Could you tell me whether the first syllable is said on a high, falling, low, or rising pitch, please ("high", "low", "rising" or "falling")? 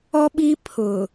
high